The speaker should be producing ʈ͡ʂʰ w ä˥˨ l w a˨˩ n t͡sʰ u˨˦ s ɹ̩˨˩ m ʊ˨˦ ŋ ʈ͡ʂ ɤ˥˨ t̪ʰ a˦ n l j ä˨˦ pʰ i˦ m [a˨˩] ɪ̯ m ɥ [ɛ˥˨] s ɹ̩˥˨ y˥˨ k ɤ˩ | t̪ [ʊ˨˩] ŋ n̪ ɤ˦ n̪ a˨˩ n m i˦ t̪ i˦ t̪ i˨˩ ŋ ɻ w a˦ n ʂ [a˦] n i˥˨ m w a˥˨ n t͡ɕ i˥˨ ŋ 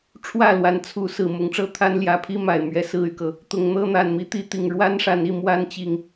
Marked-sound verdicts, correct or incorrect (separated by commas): correct, incorrect, correct, incorrect